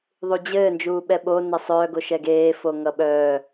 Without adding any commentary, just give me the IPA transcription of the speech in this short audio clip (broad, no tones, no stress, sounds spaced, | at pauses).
ðˤ u d͡ʑ ɘː n d͡ʒ uː ɓ ɛ ɓ o n ʌ sˤ œː ɡ o ʃ ɛ ɡ eː f o ŋ ʌ ɓ œː